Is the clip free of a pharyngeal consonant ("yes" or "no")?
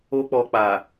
yes